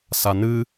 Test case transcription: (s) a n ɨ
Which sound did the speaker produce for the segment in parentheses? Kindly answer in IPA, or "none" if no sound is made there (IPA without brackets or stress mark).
s